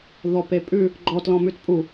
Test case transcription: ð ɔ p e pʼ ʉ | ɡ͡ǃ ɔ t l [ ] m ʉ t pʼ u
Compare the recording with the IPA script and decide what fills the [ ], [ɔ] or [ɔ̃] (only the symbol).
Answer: ɔ̃